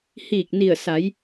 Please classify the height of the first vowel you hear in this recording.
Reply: high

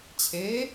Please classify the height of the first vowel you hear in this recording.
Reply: mid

